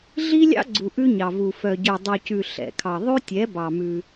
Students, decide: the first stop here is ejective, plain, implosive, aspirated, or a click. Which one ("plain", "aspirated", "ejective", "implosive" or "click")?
click